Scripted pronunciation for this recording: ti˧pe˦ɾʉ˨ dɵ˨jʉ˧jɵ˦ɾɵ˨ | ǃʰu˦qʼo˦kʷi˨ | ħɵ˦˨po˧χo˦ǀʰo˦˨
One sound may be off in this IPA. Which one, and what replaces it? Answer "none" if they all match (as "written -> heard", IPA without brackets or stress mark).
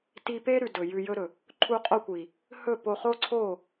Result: ħ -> h